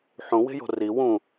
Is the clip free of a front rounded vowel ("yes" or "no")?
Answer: yes